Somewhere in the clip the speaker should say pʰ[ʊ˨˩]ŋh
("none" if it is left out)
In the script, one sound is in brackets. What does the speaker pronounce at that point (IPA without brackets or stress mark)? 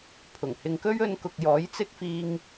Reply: ʊ˨˩